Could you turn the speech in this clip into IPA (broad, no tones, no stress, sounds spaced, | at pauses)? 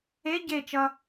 e ɟ e t͡ʃ ʌ